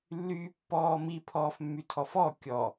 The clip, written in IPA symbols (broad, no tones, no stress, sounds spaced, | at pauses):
lː yː pː ɔː m i pʰ ɔː f mː y tʰ ɔ f ɔ kʲ ɔ